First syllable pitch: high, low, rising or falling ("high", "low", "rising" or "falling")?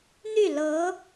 falling